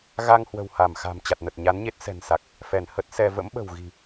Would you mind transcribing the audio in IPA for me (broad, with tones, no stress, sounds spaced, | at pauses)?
ɣ a˧ ŋ h w ə̤˨˩ w h a˧˩ m x a̤˨˩ m t͡ɕ a˨˩ t̚ n ə˨˩ t̚ ɲ a˨˦ n ɲ e˦˥ t̚ s ɛ̤˨˩ n s a˨˩ k̚ | f ɛ˧˩ n h ə˦˥ t̚ s ɛ˧ v ə̰˧˥ m ɓ ə̤˨˩ w ɣ i̤˨˩